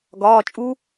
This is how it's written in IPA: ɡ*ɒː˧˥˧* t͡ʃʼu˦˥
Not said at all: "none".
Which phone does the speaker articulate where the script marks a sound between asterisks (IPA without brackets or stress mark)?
ɒː˧˥˧